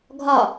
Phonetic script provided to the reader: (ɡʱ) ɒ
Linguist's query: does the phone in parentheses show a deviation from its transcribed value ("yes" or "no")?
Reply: no